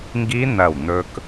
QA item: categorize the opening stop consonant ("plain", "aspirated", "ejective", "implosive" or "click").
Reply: plain